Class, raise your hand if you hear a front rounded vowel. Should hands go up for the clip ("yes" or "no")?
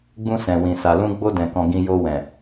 no